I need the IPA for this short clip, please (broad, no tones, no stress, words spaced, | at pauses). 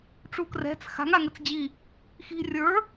ʈ͡ʂukrɛ̤t͡s xa̤ŋ aŋɘt͡sd͡ʑi | xi̤ rʲə˞